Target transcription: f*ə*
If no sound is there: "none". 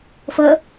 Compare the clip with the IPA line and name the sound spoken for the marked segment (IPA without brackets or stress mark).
ə